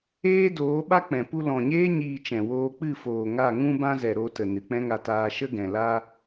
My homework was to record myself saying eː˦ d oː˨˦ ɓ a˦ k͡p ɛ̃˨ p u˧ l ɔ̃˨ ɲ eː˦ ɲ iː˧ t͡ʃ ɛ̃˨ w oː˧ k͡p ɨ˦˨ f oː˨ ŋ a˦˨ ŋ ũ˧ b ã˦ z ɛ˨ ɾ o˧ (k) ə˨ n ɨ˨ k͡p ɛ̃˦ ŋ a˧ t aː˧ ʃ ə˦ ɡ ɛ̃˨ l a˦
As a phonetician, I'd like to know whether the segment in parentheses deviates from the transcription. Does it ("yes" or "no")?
yes